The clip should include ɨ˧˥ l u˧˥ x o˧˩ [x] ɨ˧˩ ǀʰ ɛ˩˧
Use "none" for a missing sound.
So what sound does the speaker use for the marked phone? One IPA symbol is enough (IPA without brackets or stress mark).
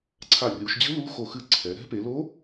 x